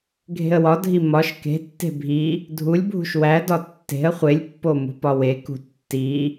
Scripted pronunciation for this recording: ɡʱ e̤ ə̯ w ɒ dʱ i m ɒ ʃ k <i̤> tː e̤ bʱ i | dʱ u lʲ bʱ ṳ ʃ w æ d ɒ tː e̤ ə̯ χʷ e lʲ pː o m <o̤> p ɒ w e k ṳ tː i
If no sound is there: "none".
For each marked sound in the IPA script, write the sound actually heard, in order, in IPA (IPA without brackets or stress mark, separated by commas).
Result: e̤, ṳ